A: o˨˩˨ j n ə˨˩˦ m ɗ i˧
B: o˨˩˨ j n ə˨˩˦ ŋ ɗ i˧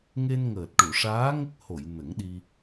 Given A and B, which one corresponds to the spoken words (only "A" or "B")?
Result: B